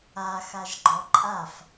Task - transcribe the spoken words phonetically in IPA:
a x a ʒ ɡ͡ǃ ɔ ǃʼ a f

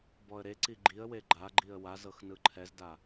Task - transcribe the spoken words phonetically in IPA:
b ɔ ə̯ ɾ e ǀ i ɡ͡ǃ i ə̯ w e ɡ͡ǃ a ɡ͡ǃ i ə̯ w a z ɤ x n ɯ ǃʰ ɛ z d a

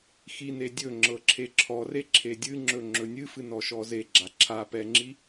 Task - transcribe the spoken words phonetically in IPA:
x i n e dʲ ɵ ŋ͡ǁ ɤ ǁʰ e ǁʰ ɔ r e ǁʰ e dʲ ɨ ŋ͡ǁ ɵ ŋ͡ǁ ɵ nʲ ɨ f ɨ n ɔ ʃ ɔ z e ɡ͡ǁ a ǁʰ a p ɛ ŋ͡ǁ i

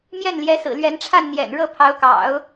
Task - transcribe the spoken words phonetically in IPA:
m j ɛ˥˩ n l j ɛ˧˥ s ɹ̩˨˩ l ɥ ɛ˧˥ n ʈ͡ʂʰ a˥˩ n n̪ j ɛ̰˨˩ n ɻ ɤ˥˩ pʰ ɑ˧˥ ʊ̯ k ɑ̰˨˩˦ ʊ̯

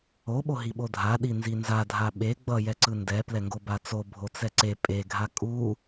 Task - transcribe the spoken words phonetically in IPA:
o ɓ o ɦ i ɓ o dʱ a ɗ i n z i n z a dʱ a ɓ e ɡ͡b ʌ j ɛ ǀ ɯ n d ɛ p l ɛ ŋ ɡ o b a t͡s o bʱ o t͡s ɛ ǀ e pʼ e ɡʱ a kʼ u

